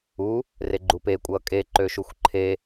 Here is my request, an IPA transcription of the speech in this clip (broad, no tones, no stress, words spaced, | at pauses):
u | reɡ͡ǃupe kʷʼʌːkʼe ǃøʃuxʷǃʰe